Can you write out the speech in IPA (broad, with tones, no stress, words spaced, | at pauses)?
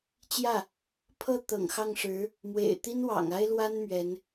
t͡ɕjä˥˩ | pʰɤ˥˩ t̪ɤ̰˨˩ŋxɑ˥˩ŋʂɻ̩˧˥ | mwḛ˨˩ɪ̯t̪i˥nwɑ̰˨˩ŋ a˥ɪ̯lwa˥n mɥɛ˧˥n